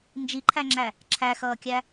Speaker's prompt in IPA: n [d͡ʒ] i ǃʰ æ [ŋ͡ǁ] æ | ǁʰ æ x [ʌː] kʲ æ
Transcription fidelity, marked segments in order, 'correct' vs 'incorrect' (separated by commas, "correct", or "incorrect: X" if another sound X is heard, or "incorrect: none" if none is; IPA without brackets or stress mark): correct, correct, correct